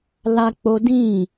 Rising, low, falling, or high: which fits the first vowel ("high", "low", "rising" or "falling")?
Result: high